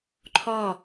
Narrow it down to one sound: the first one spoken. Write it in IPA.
ǃʰ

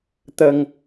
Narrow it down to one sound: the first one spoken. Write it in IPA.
t̪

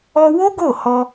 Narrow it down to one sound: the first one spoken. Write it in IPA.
ɔ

